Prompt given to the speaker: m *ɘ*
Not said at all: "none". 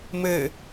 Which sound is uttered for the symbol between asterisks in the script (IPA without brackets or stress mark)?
ɘ